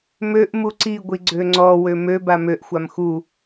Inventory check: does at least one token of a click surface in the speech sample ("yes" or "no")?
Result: yes